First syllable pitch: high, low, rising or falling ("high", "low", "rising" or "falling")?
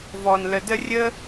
low